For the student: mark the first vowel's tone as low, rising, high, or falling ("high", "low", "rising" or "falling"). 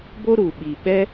high